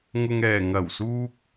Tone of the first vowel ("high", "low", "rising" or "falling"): low